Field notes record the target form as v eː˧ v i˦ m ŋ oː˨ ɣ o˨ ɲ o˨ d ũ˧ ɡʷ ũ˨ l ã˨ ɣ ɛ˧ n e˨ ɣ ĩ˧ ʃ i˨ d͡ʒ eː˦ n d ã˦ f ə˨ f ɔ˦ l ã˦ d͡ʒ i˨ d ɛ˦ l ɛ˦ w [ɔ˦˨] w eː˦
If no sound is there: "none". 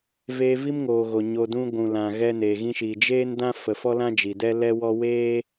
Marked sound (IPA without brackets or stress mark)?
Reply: ɔ˦